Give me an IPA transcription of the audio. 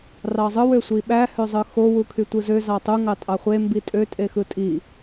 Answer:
rɑzˤɯw øsʷiɓæ høzˤɯxo wukʰytʷɯzø zɑtˤu ŋɑtʼɑχʷe mbitʼø tʼexɯtʼi

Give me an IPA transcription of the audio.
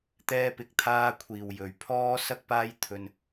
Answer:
t̪ɛː˧pɪ˨˥k̚t̪ʰaː˧kʷʰiː˨w jɵ˨ɥpʰɔː˥ sɐ˥k̚paː˥jt̪ʰɵ˧n

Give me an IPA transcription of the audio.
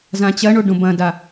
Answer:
zãt͡ɕɐɳo ɖõbɐ̃da

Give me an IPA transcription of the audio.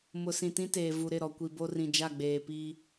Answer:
mʊ˨sĩ˨tĩ˦teː˨ vu˨ɾɪ˦˨ɾɔ˨ kʷi˨bo˦rĩ˨d͡ʒa˦˨ ɡ͡beː˨pi˦

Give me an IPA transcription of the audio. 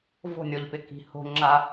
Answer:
vo̤nʲɔʎpɪ ki̤ho̤ŋ͡ǁa

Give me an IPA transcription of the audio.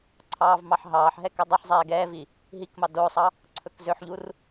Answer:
ǀʰɑːvmɑħɦɑːħɦɛ kødˤɵħzˤɛː ɡɛːvi | ɦikmɑ dosˤɑ | ǀʰɵkzøħʎur

